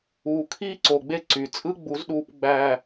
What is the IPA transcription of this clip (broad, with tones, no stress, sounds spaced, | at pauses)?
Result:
uː˨ kʰ iː˦ ǀ o˨ ɡ͡b e˦ ǀ y˨ t͡sʼ ɯ˦ ɡ͡b u˨˦ z ɗ uː˨ p ɡ͡b æ˨